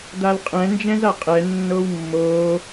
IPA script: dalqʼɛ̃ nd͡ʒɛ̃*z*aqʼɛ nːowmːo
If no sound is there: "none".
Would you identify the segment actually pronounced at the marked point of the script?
z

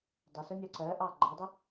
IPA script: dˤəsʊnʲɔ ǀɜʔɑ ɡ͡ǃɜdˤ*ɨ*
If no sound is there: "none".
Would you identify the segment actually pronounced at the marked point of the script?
ɪ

